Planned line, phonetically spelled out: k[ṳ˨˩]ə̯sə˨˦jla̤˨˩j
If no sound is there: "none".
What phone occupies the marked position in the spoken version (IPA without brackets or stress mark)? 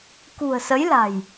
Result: ṳ˨˩